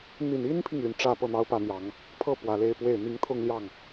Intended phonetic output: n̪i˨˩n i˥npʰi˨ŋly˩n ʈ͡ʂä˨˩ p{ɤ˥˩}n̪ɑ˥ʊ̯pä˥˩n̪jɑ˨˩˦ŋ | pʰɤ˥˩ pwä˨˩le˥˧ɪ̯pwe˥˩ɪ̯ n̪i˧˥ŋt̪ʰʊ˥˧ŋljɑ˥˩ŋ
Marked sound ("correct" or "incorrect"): correct